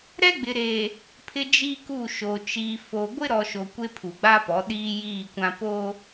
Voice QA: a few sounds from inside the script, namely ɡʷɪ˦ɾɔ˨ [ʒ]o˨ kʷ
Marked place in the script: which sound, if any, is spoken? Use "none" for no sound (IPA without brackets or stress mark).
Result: ʃ